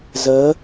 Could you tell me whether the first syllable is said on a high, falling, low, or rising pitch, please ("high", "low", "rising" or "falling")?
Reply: rising